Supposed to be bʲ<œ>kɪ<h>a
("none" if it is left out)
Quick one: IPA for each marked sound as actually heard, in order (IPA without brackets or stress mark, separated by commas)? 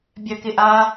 œ, ʔ